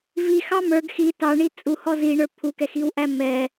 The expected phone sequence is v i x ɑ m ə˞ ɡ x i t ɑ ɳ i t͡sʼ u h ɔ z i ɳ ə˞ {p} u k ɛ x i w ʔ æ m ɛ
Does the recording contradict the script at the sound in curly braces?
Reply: yes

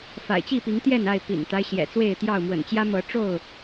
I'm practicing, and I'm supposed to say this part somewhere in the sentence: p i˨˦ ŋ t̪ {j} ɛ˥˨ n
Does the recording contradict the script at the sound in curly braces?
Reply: no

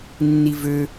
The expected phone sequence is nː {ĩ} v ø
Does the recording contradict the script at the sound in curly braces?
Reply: yes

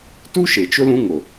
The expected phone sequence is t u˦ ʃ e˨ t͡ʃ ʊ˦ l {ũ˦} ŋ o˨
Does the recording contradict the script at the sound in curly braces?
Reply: no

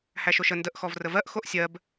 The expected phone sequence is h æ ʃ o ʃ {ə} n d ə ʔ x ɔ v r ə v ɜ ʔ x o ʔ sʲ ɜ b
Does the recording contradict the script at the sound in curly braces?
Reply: no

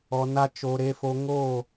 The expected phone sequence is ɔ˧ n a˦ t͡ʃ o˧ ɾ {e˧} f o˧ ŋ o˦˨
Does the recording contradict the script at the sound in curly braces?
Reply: no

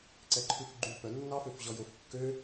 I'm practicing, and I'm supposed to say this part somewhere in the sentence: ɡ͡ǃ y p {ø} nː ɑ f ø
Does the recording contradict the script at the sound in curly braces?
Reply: yes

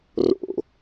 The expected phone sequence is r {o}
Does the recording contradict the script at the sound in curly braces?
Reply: yes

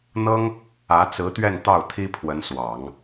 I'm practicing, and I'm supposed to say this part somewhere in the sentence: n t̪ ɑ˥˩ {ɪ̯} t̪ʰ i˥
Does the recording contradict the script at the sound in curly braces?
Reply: yes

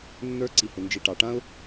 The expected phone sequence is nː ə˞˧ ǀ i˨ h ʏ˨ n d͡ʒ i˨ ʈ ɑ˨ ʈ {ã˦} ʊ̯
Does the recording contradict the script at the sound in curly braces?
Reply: no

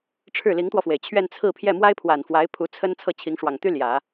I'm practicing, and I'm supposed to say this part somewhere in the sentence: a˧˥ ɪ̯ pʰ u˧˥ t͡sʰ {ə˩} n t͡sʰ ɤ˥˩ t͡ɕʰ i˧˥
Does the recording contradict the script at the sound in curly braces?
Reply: yes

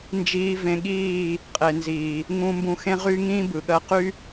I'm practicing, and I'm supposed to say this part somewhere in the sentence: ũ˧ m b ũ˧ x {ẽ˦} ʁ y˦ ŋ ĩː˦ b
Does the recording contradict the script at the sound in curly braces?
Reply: no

